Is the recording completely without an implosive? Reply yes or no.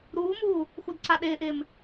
no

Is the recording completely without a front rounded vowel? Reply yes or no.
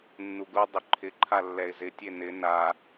no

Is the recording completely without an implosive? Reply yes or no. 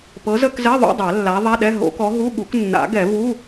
no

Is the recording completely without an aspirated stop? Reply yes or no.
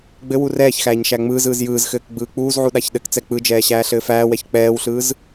yes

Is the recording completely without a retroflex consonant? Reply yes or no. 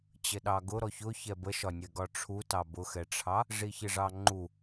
no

